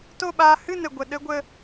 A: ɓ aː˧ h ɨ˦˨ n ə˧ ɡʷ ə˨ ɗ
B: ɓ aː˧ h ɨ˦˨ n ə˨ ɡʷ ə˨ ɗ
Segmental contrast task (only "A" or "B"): B